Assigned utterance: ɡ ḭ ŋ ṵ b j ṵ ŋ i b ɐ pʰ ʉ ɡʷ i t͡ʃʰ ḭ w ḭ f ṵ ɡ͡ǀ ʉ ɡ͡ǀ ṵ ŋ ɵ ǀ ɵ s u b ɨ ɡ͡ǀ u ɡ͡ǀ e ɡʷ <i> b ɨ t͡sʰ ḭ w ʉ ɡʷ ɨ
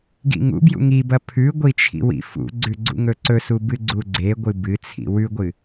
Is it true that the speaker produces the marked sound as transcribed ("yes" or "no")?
no